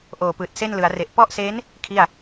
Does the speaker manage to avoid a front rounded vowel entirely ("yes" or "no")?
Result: yes